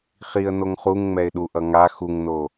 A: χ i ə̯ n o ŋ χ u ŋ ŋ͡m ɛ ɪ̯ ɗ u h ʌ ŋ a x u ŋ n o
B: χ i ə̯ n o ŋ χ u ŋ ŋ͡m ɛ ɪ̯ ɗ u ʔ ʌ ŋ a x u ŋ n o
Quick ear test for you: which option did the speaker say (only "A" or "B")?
B